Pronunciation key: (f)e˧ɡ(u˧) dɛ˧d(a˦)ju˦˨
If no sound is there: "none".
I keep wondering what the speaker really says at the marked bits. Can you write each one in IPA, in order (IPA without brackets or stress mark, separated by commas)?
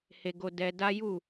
h, o˧, a˦